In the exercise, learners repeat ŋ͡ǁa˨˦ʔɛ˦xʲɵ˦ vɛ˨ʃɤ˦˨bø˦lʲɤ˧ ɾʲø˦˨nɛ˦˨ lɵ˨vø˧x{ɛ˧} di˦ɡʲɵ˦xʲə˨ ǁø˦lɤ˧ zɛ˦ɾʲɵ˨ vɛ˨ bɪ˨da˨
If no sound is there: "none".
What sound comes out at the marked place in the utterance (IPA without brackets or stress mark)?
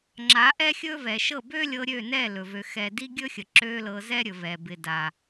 ɛ˧